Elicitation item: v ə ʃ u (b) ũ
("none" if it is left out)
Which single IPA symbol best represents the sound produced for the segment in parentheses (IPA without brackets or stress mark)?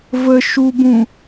b